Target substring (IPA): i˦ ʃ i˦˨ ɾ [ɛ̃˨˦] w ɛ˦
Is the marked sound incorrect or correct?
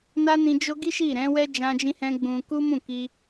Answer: correct